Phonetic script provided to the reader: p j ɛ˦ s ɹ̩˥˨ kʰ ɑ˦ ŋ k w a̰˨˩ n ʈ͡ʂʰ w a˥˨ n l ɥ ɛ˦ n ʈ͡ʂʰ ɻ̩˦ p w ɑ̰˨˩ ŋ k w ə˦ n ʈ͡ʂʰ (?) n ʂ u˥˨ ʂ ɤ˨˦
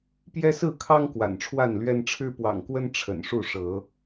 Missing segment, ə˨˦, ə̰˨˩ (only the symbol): ə̰˨˩